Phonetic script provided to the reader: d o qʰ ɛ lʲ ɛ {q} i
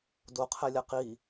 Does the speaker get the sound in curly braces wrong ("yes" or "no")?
no